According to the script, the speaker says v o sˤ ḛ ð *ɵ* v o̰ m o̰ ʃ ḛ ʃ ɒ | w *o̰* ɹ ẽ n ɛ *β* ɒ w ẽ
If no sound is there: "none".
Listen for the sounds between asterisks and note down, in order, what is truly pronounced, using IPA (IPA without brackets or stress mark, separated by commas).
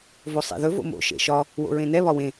ɵ, o̰, β